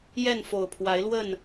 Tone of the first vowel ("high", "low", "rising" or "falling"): falling